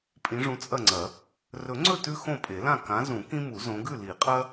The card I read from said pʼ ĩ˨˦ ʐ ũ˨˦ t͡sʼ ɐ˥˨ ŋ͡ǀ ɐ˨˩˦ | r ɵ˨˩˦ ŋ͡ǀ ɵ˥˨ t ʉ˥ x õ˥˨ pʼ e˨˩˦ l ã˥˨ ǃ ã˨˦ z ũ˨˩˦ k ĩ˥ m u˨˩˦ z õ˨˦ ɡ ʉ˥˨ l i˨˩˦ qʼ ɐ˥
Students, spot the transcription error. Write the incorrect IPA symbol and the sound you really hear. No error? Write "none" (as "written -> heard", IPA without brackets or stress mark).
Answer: ǃ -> k